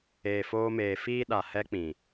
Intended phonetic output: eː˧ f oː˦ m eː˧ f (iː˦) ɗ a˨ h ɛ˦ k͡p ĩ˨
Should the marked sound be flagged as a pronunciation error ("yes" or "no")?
yes